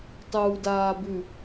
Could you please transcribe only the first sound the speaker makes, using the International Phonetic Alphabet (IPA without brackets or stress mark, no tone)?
tˤ